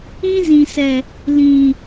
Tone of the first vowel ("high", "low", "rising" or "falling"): high